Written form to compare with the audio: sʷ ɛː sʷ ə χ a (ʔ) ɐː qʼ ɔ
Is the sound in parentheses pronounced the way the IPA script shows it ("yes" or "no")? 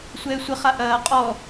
yes